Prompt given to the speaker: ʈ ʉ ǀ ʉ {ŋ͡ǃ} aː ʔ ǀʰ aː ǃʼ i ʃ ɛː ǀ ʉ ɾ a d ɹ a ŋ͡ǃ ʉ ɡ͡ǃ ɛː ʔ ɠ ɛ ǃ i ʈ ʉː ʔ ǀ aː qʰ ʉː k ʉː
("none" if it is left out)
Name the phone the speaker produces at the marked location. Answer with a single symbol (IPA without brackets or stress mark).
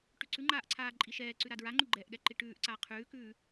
ŋ͡ǃ